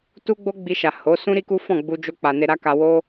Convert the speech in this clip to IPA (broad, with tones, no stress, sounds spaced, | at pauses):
t u˦ ɡ͡b o˦ ɡ͡b i˧ ʃ a˨ h o˨˦ s ũ˦ ɾ i˦ k u˦ f ɔ̃˦˨ ɡ͡b u˧ d͡ʒ o˧ k͡p a˨ n e˧ ɾ a˦ k a˧ w o˦